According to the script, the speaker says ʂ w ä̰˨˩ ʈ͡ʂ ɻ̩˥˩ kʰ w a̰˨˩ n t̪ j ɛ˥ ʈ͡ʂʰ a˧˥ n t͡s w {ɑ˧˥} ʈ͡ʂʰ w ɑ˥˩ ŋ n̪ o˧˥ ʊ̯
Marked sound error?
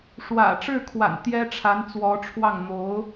yes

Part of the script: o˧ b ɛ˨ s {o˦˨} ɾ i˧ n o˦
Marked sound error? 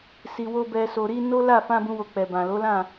yes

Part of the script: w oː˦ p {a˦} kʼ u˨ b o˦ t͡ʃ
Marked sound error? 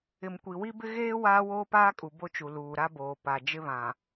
yes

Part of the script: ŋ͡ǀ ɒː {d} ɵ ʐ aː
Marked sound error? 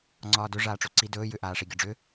no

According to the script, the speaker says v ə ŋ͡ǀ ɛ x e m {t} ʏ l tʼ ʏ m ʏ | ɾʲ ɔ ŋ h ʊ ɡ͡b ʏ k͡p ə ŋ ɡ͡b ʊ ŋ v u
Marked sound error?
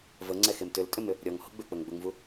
no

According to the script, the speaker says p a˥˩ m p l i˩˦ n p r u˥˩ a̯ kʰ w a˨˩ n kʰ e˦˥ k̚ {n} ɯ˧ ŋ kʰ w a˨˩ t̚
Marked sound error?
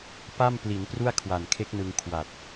no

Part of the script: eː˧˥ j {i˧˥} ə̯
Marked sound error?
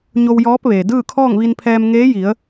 yes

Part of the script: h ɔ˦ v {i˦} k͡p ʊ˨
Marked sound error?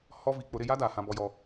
yes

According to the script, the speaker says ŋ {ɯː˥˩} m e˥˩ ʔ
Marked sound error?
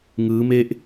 yes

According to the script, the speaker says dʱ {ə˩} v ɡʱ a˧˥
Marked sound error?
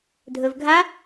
yes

